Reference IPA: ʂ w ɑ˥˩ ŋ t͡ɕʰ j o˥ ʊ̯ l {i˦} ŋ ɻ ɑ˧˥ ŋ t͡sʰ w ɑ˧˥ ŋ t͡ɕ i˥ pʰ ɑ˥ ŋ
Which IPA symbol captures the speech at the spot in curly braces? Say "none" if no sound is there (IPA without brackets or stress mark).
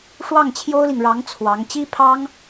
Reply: i˨